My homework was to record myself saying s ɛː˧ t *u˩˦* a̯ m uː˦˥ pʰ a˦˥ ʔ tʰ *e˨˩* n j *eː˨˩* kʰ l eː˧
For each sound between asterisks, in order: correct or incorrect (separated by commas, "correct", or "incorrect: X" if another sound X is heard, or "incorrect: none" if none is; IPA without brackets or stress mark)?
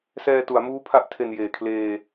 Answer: correct, correct, correct